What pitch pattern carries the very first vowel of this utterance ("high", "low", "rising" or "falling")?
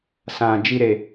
low